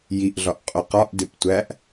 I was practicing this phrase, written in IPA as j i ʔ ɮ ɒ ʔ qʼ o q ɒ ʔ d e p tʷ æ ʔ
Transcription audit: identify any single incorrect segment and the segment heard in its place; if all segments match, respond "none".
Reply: none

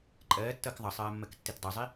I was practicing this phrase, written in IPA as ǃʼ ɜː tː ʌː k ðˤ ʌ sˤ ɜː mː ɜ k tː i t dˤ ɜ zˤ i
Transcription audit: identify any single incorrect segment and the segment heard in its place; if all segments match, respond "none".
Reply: none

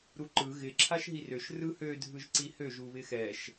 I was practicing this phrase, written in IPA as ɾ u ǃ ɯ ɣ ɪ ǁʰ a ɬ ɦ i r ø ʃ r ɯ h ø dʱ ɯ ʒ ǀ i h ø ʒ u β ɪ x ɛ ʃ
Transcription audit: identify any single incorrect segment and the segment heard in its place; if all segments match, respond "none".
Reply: ɬ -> ʃ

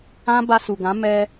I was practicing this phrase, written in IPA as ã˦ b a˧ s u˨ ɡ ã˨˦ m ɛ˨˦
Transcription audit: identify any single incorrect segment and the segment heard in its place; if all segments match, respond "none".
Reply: ɛ˨˦ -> ɛ˧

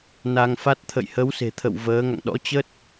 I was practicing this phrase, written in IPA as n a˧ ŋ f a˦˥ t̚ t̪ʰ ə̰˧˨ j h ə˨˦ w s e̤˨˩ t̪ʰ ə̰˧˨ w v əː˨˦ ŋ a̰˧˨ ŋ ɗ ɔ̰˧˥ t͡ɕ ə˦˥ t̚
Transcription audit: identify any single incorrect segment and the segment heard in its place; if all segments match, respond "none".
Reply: none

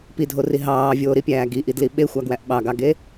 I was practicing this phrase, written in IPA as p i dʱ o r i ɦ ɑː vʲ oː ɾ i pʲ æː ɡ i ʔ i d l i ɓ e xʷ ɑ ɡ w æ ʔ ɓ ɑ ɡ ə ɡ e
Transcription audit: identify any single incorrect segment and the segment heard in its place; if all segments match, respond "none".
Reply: ə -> ɑ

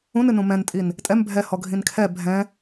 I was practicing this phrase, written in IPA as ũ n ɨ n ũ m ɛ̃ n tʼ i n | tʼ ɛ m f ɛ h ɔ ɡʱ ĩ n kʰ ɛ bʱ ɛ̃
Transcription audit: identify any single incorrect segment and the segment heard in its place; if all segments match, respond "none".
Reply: f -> bʱ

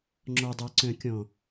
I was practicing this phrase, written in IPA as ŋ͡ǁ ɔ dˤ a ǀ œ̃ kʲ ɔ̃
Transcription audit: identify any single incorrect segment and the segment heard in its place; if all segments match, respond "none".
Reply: none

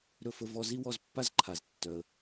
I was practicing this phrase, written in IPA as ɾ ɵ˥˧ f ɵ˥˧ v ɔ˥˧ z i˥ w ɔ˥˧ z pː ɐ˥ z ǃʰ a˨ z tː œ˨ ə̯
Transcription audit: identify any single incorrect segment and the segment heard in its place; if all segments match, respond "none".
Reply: ɐ˥ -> a˥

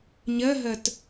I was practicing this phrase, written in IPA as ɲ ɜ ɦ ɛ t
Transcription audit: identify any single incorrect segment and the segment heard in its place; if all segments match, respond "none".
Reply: ɛ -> ɜ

